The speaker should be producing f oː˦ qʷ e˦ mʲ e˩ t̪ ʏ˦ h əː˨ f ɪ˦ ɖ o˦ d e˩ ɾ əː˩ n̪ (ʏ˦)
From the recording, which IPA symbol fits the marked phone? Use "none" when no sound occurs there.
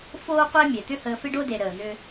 ʏ˦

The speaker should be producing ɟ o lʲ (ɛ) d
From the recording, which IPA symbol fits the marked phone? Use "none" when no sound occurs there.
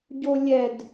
ɛ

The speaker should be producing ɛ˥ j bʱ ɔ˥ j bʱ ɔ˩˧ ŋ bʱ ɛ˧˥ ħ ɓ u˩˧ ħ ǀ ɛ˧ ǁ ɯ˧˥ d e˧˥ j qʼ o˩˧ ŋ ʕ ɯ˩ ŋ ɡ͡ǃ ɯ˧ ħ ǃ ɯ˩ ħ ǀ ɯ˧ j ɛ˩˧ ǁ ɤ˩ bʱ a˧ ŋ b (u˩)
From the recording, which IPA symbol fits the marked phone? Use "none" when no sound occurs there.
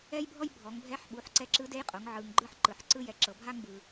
ɯ˩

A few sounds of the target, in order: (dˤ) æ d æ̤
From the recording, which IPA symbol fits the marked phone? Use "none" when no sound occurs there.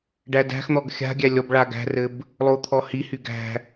ɖ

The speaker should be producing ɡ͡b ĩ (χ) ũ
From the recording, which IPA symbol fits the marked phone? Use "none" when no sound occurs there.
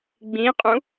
qʼ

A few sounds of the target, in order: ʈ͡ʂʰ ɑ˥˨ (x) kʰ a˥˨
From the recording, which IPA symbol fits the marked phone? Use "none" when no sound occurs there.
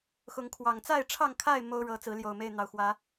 ŋ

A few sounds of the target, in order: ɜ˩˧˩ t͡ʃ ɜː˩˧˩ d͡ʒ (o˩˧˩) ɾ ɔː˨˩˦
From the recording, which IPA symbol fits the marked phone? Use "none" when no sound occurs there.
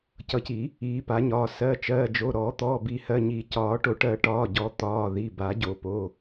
o˩˧˩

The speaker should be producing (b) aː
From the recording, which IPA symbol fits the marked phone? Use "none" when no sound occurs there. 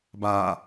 b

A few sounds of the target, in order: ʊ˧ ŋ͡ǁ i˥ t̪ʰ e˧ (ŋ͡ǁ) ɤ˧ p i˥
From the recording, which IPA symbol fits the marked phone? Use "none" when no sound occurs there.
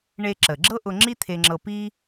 ŋ͡ǁ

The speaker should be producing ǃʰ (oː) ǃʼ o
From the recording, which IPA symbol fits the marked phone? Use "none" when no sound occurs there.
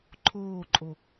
oː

